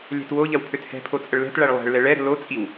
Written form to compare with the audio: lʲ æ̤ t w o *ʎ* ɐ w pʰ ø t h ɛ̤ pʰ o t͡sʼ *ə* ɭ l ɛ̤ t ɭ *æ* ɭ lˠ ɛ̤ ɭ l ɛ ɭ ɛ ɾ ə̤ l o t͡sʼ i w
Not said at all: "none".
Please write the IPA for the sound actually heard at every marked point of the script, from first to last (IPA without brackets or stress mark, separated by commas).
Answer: ʎ, ə, æ